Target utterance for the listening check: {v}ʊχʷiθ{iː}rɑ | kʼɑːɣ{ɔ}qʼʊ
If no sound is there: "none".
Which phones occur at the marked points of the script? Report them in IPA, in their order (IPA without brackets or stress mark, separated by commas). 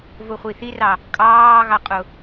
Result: v, i, ɑ